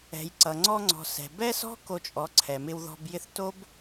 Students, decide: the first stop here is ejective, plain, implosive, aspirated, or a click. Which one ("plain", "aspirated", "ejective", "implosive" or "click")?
click